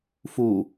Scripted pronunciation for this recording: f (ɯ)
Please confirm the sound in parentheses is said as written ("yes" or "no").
no